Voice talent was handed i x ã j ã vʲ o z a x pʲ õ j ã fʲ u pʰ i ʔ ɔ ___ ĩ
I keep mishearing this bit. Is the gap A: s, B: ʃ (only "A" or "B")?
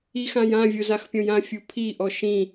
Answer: B